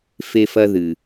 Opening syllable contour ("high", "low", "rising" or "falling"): high